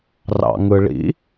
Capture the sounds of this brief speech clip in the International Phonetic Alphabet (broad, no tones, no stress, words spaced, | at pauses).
rɑ̰ŋɯɭḭ